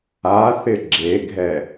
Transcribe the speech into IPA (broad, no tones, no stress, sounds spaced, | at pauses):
a θ ɪ ɡ͡ǁ e ɡʱ ɛ